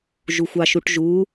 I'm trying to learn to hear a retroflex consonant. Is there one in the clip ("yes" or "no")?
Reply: yes